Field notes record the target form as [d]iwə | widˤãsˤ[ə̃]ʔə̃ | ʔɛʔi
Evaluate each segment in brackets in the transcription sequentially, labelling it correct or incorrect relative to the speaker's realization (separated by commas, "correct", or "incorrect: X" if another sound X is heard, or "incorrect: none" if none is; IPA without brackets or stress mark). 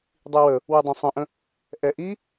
incorrect: dˤ, correct